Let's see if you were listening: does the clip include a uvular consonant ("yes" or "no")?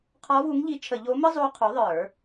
yes